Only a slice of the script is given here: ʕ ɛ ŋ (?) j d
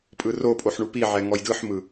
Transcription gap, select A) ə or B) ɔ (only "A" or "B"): B